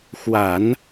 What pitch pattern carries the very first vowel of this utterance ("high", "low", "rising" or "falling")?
low